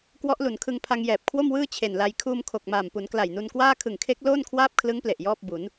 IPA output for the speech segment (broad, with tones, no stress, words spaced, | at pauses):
kwɔ˦˥ʔlu˩˦nkʰɯ˧ŋpʰa˧ŋ jɛː˨˩p̚kʰwo˥˩mwɯː˥˩ t͡ɕʰe˨˩nla˧j kʰuː˧mkʰo˨˩k̚maː˨˩mpu˩˦n kla˨˩jnu˧nkwaː˥˩ kʰɯ˨˩ŋkʰe˦˥k̚ loː˥˩nkʰwaː˥˩p̚kʰlɯ˦˥ŋple˨˩ʔ jɔː˥˩p̚bu˩˦n